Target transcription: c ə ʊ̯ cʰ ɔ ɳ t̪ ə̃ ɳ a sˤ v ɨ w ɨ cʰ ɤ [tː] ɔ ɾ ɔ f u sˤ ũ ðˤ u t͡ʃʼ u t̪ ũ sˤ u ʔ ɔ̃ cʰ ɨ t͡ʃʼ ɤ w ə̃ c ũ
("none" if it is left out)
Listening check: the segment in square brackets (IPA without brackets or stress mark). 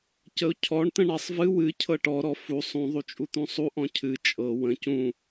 ʈ